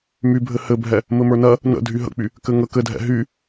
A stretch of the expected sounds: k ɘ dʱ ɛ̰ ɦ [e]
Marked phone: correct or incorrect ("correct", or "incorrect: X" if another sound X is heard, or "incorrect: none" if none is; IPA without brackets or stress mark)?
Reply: incorrect: y